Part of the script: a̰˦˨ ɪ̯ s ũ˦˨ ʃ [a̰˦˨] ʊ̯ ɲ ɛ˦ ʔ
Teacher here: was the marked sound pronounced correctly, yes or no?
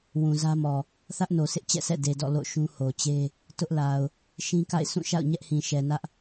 yes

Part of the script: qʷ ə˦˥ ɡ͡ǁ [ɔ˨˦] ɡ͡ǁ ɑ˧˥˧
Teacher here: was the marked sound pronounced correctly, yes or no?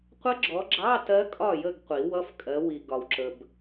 yes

